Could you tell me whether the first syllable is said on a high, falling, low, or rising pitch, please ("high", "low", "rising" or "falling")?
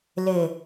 low